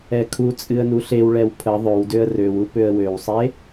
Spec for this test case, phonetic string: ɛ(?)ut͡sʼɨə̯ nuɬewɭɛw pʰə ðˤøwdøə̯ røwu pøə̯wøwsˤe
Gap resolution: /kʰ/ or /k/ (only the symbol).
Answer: kʰ